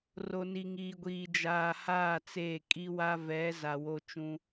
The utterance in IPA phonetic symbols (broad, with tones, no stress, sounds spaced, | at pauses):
r o˨ n i˨ ŋ iː˨ ɡʷ iː˨ d͡ʒ aː˨ h aː˦˨ t͡s eː˦˨ kʼ i˦ w a˦ v ɛ˨˦ z a˨ w o˦ t͡ʃ ũ˦